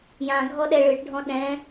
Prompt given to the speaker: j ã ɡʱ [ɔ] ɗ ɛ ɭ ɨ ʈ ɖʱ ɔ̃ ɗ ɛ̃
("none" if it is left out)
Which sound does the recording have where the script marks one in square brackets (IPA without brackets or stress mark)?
ɔ